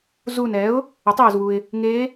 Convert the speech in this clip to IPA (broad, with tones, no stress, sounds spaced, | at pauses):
z uː˧˩ n ɛː˩˥ ʊ̯ | e˩˥ tˤ eː˩ z w u˩ ɪ̯ | ŋ eː˧˥